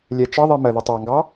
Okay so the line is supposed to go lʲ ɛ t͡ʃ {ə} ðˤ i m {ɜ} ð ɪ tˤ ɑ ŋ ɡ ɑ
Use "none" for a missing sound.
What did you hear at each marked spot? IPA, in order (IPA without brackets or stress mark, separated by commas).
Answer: ʌ, ɜ